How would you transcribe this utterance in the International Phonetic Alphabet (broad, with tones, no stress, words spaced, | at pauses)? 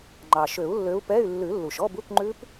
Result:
ŋ͡ǃɑ˩ʃø˨˩˦u̯lːø˨˦u̯ pɛ˧˥˧y̯ lːʉ˨˩˦lːu˩ʃ ɔ˧˥˧bu˧˥˧kŋ͡ǃʉ˦˥p